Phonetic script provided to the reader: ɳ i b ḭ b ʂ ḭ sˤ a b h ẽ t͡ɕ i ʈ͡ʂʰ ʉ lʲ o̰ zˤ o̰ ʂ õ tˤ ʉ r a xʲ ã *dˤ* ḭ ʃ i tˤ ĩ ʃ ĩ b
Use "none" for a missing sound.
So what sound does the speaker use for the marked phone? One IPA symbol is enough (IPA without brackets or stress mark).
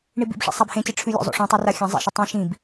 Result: zˤ